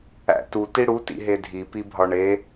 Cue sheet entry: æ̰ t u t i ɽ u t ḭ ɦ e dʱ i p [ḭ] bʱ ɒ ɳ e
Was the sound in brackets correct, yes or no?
no